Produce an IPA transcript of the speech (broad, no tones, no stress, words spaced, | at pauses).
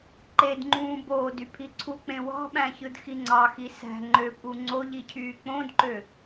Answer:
ǃedŋ͡ǃũː boːdy pʰiǀʰuk͡pẽ wɑ̤ɓæ̃çɯd xiŋ͡ǀɑxi sæ̤ ŋ͡ǃøpʼu ŋ͡ǀo ʎicʰyːk͡põdǃø